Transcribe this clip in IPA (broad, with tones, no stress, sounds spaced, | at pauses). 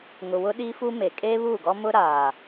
ŋ ʊ˨ w ʊ˦ ɗ iː˦ f u˦ m e˨ kʼ eː˦ β uː˦˨ ɡ ɔ˦ m ʊ˦ ɾ aː˨